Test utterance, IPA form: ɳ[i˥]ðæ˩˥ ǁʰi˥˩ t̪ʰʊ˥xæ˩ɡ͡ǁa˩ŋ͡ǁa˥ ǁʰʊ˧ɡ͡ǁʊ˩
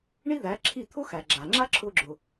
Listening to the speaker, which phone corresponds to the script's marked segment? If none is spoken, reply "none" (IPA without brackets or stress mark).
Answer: i˥